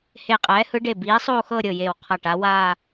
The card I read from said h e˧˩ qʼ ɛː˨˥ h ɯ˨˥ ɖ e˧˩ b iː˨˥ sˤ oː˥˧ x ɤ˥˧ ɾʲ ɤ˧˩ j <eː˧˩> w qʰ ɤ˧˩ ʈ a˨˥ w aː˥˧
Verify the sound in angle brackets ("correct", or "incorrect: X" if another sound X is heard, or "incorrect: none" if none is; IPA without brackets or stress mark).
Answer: correct